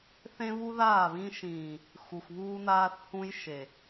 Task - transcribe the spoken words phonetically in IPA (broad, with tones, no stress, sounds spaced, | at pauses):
θ ẽ˦ β u˦ ð aː˦˨ β ĩ˦ ʃ ĩː˨ | x u˨ x β uː˦ n aː˦ θ h ũ˦ j ʃ e˨